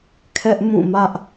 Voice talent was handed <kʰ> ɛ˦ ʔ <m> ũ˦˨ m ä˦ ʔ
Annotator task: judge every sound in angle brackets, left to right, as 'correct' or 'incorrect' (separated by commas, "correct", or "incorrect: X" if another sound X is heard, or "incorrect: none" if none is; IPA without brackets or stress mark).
correct, correct